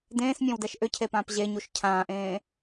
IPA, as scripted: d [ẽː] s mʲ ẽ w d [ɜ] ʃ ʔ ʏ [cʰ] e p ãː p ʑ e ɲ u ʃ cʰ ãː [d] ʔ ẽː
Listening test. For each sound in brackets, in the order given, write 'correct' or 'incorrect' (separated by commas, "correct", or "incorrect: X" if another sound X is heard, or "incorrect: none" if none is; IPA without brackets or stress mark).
correct, incorrect: ɛ, correct, incorrect: none